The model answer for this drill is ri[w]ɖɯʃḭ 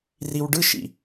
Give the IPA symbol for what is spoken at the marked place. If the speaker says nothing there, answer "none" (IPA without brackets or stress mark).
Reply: w